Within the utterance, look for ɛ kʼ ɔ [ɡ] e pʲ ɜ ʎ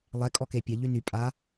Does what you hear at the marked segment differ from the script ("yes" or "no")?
yes